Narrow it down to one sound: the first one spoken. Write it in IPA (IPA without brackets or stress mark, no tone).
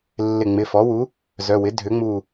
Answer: lː